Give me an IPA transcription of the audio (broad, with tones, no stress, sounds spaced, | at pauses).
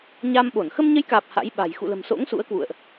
ɲ aː˧ m ɓ o˧˩ n x ə˧ m ɲ ə˨˦ j k aː˨˩ p̚ h a̰˧˥ j ɓ a̤˨˩ j x ṵ˧˨ l ə̤˨˩ m s o̰˧˥ ŋ s ṵ˧˥ ə̯ k w ṵ˧˨ ə̯ ʔ